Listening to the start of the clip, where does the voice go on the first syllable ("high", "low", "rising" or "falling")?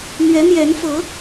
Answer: rising